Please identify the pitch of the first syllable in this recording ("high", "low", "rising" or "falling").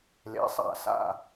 rising